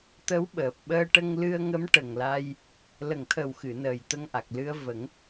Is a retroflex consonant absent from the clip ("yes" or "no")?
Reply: no